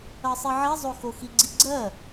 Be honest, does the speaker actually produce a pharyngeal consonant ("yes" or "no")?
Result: yes